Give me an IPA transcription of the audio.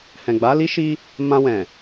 hɛ̃˨ɡ͡ba˨˦li˦ʃi˦ | mã˧wɛ̃˨

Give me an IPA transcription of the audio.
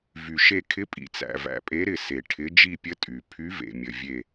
vy˨ʃe˦˨ kʰɪ˧˥pʼḭ˨t͡sæ̰˨ væ̰˨pʼe˧˥ɾɪ˦˨ se˨ ʈʰɪ˧˥ d͡ʒi˦˨pʲə˧˥ tʼy˨ pʰy˧˥ vḛ˨mʲə˨ vʲe˦˨

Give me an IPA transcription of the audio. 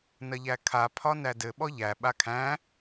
nɐʎækʰa pʰɒnædɘ ɓɔʎæ ɓakʰæ̃

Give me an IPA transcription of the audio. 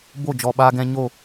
bo˦˨d͡ʒɔ˨ɓaː˧ɡɛ̃˧ ɲo˦˨

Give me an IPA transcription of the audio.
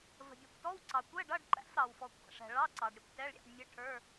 və̤˩bʲɔ˩kʷtɔ˧˥˧w ǀɑ˩kʷɛ˧˥˧ɖʌ˧˥˧ɖǃæ̰˧˥˧f ɾɑ˩wfɔ˩kʷʰæ̰˩ʂɛ̤˩ ɭɑ˧˥˧ǀɑ˩ɖ ɾʲə˩kʷ tɛ˧˥˧ɭɾʲæ̰˧˥˧ɖmʲə˧˥˧ ʈʰə˞˧˥˧

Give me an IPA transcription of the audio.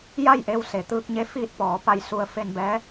ja˥˨jʔe˧w se˩˧t̪ɯː˧k̚ɲe˧˥ fiː˧t̚pɔː˩˧ pa˧jsu˧ə̯ fe˧nbɛː˧˥

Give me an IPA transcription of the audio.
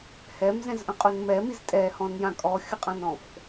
hɛmzɛ̃zʔə̃qʼun mɛmiz tʼɛhɔ̃njã kʼɔxʲəqʼãnɔ̃f

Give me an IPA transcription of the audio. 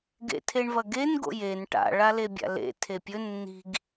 ɡḛtʰeɳvɐɡen ɡo̰jen ʈa̰ ɭalebʲa̰lḛ tʰepʲɵ nːi̤ɡ

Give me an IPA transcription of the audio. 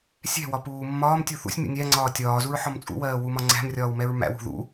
sʲɛ̤wɒ puːmːɒːmtʲu θṵsʲmʲṵ nʲæŋ͡ǀɒː tʲɒːzuɹ ħɒmt͡sʼṵwɜː wumɒŋ͡ǀæ̤mrʲɒːw mɛɹmæ̰wṳ ðṵ

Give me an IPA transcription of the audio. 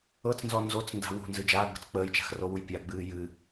ɤt͡snzɔ nzot͡snda̤ wṳnzɨ d͡ʒaːɡ͡bə̤t͡s k͡pəːjt͡ʃa̤xrowuj pʲaɡ͡bɨː jɨ

